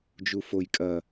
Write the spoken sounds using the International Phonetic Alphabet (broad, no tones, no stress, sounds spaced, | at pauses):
d͡ʒ u f o j kʼ ɐ